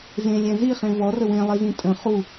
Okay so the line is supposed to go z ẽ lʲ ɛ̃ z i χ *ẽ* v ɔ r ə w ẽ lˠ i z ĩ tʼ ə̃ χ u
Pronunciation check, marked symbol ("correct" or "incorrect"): correct